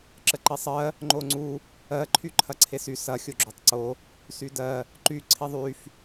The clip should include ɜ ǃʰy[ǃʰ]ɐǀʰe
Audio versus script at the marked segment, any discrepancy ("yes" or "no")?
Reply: no